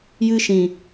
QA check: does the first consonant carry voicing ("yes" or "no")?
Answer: yes